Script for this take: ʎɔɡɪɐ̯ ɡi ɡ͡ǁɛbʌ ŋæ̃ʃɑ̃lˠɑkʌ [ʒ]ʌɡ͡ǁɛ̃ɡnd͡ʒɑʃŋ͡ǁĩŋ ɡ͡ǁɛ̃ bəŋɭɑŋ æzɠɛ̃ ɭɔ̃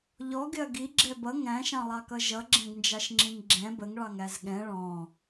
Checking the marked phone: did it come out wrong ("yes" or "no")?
no